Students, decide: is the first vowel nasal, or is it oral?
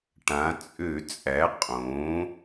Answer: nasal